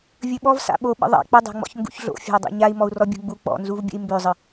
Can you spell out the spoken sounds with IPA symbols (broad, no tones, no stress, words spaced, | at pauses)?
vʲɵɓɔv sa̰ɓo ɓə̰ðˤa̰ k͡pə dˤa̤ŋ͡mɔ̰çŋɡṵçɮo̰ fʲa̤u̯dˤo̰ɲai̯ mɔu̯rɔbʲṳɡ͡bu k͡pɔ̰nzuvbʲə̰i̯ mbøzˤə